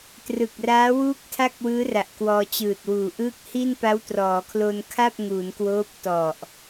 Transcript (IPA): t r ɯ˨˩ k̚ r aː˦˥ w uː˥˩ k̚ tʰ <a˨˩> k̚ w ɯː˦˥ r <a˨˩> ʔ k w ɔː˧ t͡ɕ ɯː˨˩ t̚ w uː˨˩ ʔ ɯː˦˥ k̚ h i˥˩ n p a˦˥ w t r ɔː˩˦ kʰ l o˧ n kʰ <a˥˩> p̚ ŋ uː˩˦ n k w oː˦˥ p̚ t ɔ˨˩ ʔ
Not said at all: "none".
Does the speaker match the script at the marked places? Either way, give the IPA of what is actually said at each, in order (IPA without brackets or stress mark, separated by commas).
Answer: a˥˩, a˨˩, a˥˩